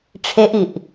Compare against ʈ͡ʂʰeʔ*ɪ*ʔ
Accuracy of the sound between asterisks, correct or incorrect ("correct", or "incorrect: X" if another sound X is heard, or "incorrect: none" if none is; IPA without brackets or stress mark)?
incorrect: i